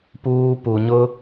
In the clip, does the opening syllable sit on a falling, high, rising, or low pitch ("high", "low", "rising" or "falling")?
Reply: high